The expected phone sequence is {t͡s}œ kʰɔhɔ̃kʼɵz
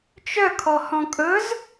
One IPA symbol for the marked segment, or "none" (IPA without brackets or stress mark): t͡ʃ